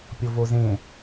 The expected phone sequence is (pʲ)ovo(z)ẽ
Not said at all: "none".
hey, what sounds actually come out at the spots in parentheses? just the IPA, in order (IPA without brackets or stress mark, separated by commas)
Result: pʲ, z